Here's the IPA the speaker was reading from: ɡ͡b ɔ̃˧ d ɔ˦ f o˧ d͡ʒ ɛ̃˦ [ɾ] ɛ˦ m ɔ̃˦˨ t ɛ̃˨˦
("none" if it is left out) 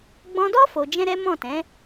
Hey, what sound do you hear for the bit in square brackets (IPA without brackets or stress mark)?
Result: ɾ